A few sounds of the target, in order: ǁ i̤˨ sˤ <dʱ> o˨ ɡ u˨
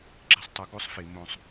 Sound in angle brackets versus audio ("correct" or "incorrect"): incorrect